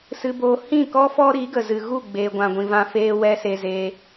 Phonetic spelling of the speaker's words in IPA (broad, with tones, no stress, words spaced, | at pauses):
sɨ˧boː˧ hĩ˦˨kɔ˦fɔ˦ɾi˨˦ ɡə˨zɨ˨ɣu˦˨ ɡ͡beː˧ɡʷã˧ɡʷĩ˧vã˦ feː˦wɛ˦se˧zeː˧